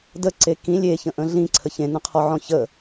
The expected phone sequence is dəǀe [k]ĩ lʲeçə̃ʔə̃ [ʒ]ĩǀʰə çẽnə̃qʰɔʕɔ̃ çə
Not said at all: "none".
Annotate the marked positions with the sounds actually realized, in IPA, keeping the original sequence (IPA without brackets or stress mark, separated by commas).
k, ɮ